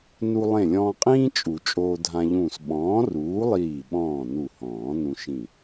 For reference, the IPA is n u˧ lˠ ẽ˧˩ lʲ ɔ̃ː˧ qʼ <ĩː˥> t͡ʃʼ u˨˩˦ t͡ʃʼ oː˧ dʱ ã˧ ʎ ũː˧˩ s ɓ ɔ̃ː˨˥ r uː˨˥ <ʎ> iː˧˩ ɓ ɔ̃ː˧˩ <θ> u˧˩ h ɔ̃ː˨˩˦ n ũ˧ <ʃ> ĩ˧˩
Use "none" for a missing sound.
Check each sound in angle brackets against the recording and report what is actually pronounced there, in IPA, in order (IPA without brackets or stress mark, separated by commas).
ĩː˥, lˠ, n, ʃ